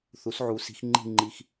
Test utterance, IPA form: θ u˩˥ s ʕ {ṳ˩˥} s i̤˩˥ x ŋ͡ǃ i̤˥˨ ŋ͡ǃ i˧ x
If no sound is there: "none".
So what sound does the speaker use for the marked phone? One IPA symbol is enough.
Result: u˩˥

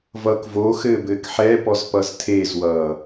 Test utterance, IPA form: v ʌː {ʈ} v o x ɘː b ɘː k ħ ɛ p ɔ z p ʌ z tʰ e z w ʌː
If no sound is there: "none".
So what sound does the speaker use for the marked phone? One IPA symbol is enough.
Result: k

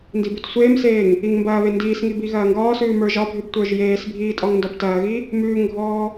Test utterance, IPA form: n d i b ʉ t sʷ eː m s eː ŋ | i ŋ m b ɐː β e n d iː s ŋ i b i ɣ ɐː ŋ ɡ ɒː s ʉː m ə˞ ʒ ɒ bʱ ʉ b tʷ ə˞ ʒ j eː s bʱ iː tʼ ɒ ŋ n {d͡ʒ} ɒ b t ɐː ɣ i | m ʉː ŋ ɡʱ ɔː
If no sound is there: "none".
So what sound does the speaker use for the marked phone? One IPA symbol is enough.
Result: d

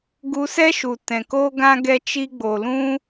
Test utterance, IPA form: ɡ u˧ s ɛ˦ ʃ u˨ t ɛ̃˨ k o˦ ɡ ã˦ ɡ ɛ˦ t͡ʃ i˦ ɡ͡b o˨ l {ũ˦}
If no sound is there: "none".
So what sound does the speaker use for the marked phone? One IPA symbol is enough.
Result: ũ˦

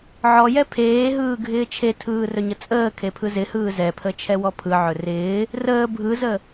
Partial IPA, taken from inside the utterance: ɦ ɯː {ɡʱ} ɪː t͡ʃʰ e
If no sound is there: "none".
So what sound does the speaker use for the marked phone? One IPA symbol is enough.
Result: ɡʱ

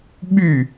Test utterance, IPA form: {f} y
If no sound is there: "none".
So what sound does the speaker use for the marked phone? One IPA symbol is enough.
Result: ɓ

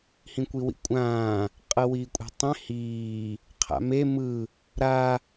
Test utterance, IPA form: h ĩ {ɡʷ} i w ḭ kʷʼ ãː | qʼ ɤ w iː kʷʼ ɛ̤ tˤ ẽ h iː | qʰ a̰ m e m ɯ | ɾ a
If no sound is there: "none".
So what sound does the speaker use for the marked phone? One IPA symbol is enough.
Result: kʷ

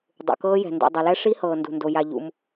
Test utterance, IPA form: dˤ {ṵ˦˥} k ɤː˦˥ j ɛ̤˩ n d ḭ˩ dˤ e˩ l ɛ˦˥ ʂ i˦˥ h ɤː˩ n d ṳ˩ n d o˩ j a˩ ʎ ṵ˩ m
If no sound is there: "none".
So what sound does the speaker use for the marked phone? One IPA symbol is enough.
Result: ṵ˩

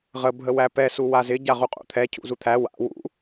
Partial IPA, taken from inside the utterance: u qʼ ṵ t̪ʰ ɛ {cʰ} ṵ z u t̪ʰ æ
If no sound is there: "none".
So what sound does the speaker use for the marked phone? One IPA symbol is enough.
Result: cʰ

